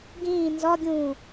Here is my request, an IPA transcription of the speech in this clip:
ɡ ĩː n z ɒ ɡʲ ũː

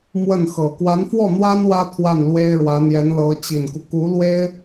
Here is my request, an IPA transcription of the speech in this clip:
m w ə˥˩ n x ɤ˨˩ k w a˧˥ n f w ɔ˥˩ n̪ w a˥ n w ä˥ t̪ʰ w a˥˩ n l w e˥ ɪ̯ ɻ w ä˧˥ n̪ j ɛ˧˥ n l ɤ˧˥ t͡ɕ i˨˩ n k u˦ k u˧˥ l w e˥ ɪ̯

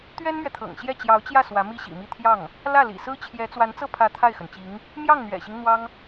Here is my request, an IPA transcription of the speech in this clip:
t̪ ɥ ɛ˥ n m ɥ ɛ˨ t̪ʰ ɤ̰˨˩ ŋ ɕ j ɛ˥˩ t͡ɕ j ɑ˧˥ ʊ̯ t͡ɕ j ä˥˩ s w ä˧˥ m i˥ ɕ ḭ˨˩ m i˥˧ t̪ʰ j ɑ˥˩ ŋ | l ä˥˩ l ḭ˨˩ s ɹ̩˥ t͡ɕʰ j ɛ˧˥ t͡s w a˧˥ n t͡s ɤ˥˩ pʰ ä˧˥ t̪ʰ a˥˩ ɪ̯ x ə˩ n t͡ɕ i˧˥ ŋ | m j ɑ˥˩ ŋ n̪ ɥ ɛ̰˨˩ ɕ i˦ ŋ n̪ w ɑ˥ ŋ

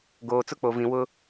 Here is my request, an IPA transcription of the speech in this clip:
ɡ oː˨ t͡s ʊ˦ k͡p o˨ v ĩ˨ w ʊ˦

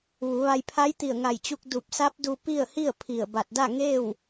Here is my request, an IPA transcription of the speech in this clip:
ʋ u˩˧ ʋ a˧ j pʰ a˧˥ j t̪ i˧˩ ə̯ ŋ a˧˩ j t͡ɕ u˧ k̚ d u˧˩ p̚ s a˧˥ p̚ d u˧ p i˥˨ ə̯ h i˥˨ ə̯ pʰ i˧˩ ə̯ b a˧˩ t̚ d a˥˨ ŋ eː˥˨ w

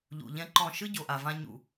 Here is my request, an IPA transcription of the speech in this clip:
ʎ ṵ˨ ʎ ɛ̃˦ ǃ ɔ̃˦˨ ʃ ɯ˦ ɟ o˨ ʔ a˨ v ã˧ ɲ ṵ˨

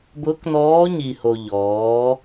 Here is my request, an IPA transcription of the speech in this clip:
b ʊː˧˥ k n ɔː˧˥ ɲ i˧ h o˧ ʎ ɔː˩˧

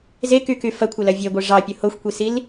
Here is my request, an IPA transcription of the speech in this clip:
z e k y k y f ɐ kʷʰ ɐ l ɐ vʲ e ɡʷ e ʐ ɑ pʲ ʊ h o xʷ kʷ i s i l

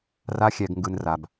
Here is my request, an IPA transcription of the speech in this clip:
r a˦ xʲ ɛ˧ ɡ ŋ ɡ ɯ˧ n r a˧ b

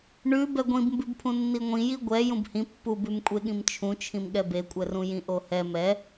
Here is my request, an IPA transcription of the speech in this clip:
ɳ ʉ b ɛ ɡʷ ĩ b m b ʉ b pʰ ũ nː i ŋʷ ĩ j i ɡʷ ɛ j ũ b h ĩ pː u b ʉ m kʷʼ e ɠ ĩ m t͡ʃʰ ũ t͡ʃʰ ĩ m ɠ ɛ b e kʷʼ ɛ r ũ j ĩ ʔ o h ɛ m ɛ

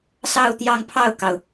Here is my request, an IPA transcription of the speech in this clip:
s ɑ˥˧ ʊ̯ t̪ j ɑ˥˧ ŋ pʰ ɑ˥˩ ʊ̯ k ɑ˩ ʊ̯

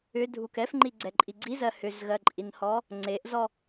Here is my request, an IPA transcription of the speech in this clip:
ʏ dʱ u k ɛ f ŋ͡ǃ i ɡ͡ǀ ɛ ǃʼ i ɡ͡ǀ i z ɜ h ʏ z ɣ ɜ ǃʼ i n h ɔ | ŋ͡ǀ e ʔ z ɔ

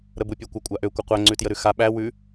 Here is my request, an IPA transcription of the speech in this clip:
ɾ ə b u pʲ ø kʷ ə kʷʼ a ʔ ø kʷ ə qʷ æ ŋ͡ǀ ʉ t j ə ɾ ʉ x a ɓ æ w ʉ

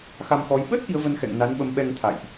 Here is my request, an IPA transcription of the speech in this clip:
x a˧ m x ɔ˨˦ j ɓ ə˦˥ t̚ ʔ i˨˦ ə̯ v ə˧ n x ɛ̰˧˨ ŋ n a˨˦ n ɓ ə˨˦ m ɓ ɛ˧ ŋ t̪ʰ a̰˧˨ j ʔ

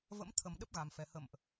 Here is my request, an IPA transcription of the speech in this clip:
v ə̰˧˥ m t̪ʰ ə˨˩ m ɗ ə˦˥ p̚ ɣ a˨˩ m f ɛ˨˩ h ə̰˧˨ m ʔ

